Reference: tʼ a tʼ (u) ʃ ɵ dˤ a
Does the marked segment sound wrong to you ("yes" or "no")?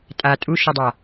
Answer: no